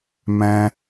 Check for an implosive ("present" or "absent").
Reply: absent